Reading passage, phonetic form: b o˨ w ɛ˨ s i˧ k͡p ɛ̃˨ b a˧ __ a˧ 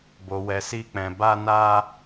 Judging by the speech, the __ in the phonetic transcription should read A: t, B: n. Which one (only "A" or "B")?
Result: B